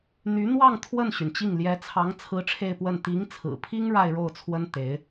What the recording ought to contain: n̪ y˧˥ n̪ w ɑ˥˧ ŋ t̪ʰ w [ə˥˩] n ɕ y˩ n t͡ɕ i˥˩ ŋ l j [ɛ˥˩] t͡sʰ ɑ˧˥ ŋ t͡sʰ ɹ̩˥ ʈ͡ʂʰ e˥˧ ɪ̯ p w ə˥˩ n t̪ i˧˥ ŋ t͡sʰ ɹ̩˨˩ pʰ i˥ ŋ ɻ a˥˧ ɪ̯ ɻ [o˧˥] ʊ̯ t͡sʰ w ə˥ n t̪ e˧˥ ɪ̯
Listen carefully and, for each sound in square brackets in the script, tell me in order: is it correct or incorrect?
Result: correct, incorrect: ɛ˧˥, incorrect: o˥˩

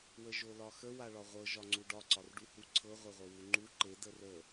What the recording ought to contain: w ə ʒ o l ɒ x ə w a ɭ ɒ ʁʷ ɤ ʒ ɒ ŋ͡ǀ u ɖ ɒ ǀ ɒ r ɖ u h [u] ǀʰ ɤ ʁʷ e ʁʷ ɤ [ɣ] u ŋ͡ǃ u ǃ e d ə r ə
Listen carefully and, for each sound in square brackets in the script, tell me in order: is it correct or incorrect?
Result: correct, incorrect: w

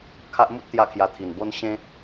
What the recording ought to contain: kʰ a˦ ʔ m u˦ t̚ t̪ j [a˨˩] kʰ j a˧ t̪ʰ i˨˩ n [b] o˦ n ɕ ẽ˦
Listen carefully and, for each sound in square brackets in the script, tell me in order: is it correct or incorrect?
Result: incorrect: a˥˧, correct

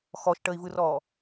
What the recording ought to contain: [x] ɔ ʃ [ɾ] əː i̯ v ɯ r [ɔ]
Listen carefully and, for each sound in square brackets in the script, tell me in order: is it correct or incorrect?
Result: correct, incorrect: ʈ, incorrect: ɔː

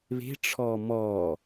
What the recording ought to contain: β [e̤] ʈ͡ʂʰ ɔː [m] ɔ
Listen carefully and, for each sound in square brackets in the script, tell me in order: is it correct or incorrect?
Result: correct, correct

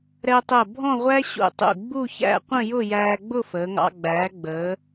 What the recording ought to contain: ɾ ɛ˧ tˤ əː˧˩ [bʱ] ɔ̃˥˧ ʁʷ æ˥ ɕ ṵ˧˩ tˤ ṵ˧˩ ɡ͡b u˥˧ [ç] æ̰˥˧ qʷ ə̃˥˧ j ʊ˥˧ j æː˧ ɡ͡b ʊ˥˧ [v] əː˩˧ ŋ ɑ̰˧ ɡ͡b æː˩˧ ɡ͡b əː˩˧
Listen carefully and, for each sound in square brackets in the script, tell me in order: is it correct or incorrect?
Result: correct, correct, incorrect: f

